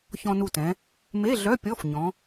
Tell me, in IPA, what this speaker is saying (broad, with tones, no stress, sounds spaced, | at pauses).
ç ɔ̃˧ n u˧˩ t ɛ̃˩˧ | m e˧˥˧ ɮ œ˧˥˧ pʲ ɔ˧˥˧ f ɲ ɔ̃˩˧